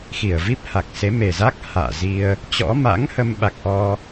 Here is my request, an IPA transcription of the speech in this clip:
x i˧˩ ə̯ v i˦˥ p̚ h a˨˩ k̚ s e˨˦ m e˨˩ z a˦˥ k̚ h a̰ː˧˨ z i˧ ə̯ | t͡ɕ ɔ̰˧˥ m a̰˧˥ ŋ h ə˧ m ɓ a˨˩ k̚ ʔ ɔ˧

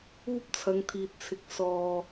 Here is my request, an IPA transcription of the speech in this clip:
uː˥ p̚ t͡sʰ ɐ˨˧ ŋ t̪ʰ iː˨ t̚ t͡sʰ ɪ˧ k̚ s ɔː˧

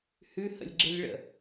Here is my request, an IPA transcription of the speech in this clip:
h ʉ h ə̰ lʲ ɡ͡ǁ e lʲ ɭ ə̰

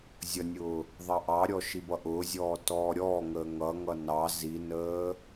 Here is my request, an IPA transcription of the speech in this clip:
zʲ ʌ nʲ ʊː | ðˤ ɑ ʔ ɑ ɾʲ ɔ ʃ i b ʌ ʔ ʊː zʲ ɔː t ɔː ɾʲ ɔː ŋ əː ŋ ʌ ŋ ʌ n ɑ z i n əː

